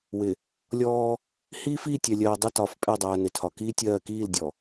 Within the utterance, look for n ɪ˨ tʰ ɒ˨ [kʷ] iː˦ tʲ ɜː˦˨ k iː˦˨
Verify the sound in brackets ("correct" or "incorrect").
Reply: incorrect